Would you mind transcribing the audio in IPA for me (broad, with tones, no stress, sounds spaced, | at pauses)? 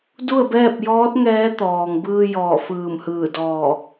d u˥˨ ə̯ b ɛː˥˨ p̚ j ɔː˧˥ t̚ ŋ ɛː˧˥ t̪ ɔː˩ ŋ b ɯː˧ j ɔː˧˩ f ɯː˧˩ m h ɯː˧˩ d ɔː˧˩